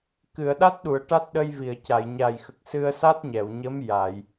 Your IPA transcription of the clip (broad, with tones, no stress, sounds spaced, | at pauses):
k ɨ˨˩˨ ə̯ ɗ a˦˥ t̚ ɗ u˨˩˨ ə̯ ʈ a˦˥ t̚ ɗ ə˧ j v i˨˩˨ ə̯ c a˨˩˨ j ɲ a˨˩ j x ə˨˩ k̚ s ɨ˧ ə̯ s a˦˥ t̚ ɲ ɛ˨˩˨ w ɲ ə˧˥ m j a˨˩˨ j